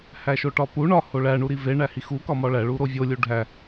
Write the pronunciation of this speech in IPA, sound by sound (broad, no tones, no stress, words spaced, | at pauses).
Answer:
hæʃoʈɒpu ɳɒ hoɭæ ɳuɾive ɳæhixu kɒmɒɭæ ɭuɾovʲo lʲuɖʱæ